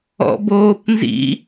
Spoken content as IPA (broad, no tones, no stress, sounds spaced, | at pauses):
ɔ̰ b oː p n z ḭ